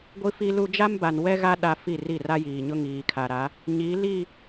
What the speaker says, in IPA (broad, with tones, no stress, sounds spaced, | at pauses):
ɡʷ i˦ f i˦ l u˦ d͡ʒ a˦ m b a˨ n w ɛ˦ ɣ a˦ ɗ a˦ f i˦˨ r i˦˨ r a˦ j iː˨ ɲ ʊ˦ ŋ iː˨ kʰ a˨ ɾ a˨˦ | ɲ i˨˦ l i˦˨